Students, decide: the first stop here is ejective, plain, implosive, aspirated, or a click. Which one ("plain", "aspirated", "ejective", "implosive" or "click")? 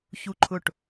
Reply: click